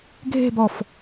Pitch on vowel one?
falling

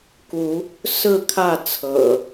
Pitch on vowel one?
rising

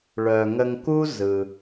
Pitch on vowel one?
low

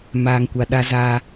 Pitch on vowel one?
low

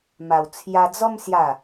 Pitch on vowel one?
low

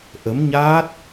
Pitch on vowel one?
rising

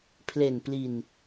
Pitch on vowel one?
low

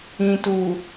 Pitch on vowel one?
low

